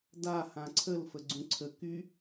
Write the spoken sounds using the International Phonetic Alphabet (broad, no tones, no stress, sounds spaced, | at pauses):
d a h ã ǀʰ ə l f ə ɡ͡ǀ ũ ǀʰ ə k y